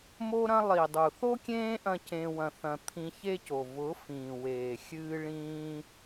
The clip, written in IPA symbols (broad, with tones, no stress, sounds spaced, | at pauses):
m o˦ ɾ ɐ̃˦ lˠ i˨ dˤ u˨ θ o˦ kʲ ẽː˦ ʔ ɐ̃˧ c ẽ˧ w ɐ̃˧ θ ɐ̃˧ t̪ʰ ĩ˧ ç e˦ c o˨ v ʊ˨˦ f ĩː˨ w eː˨ xʲ ɨː˦ ɭ ĩː˦